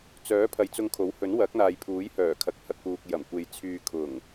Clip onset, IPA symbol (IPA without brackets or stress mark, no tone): t͡s